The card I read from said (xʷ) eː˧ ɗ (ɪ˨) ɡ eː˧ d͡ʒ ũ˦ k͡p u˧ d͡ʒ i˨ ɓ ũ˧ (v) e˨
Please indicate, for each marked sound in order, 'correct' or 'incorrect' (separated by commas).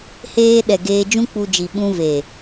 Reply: incorrect, incorrect, correct